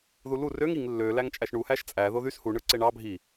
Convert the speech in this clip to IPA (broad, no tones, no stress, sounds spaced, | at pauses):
ð u l u r ø ŋ i ŋ lː ø l æ ŋ t͡ʃʼ æ ʃ ɳ u h æ ʃ t͡sʼ æ ð o ð y s h u ɳ ɯ ǀ e ɳ ɑ bʱ i